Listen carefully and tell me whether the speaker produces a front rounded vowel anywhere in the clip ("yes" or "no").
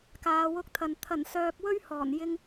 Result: yes